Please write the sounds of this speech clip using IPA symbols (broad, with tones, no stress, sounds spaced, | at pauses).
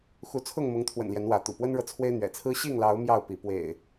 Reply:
x u˨˦ t͡sʰ ʊ˥˨ ŋ m ʊ˨˦ ŋ t̪ʰ w ə̰˨˩ n l j ɛ˨˦ n w ä˨˦ t̪ ṵ˨˩ p w ə˦ n ɻ ɤ˨ t͡sʰ w e˦ ɪ̯ n̪ ɥ ɛ̰˨˩ t͡sʰ ɹ̩˦ ɕ i˥˨ ŋ l ɑ˨˦ ʊ̯ m j ɑ˥˨ ʊ̯ p i˨˦ p w ḛ˨˩ ɪ̯